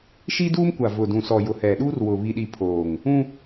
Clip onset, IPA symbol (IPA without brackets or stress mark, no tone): ʃ